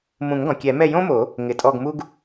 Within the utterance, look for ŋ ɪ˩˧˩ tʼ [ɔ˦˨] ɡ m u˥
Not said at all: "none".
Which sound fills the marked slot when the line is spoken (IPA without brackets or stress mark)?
ɔ˦˨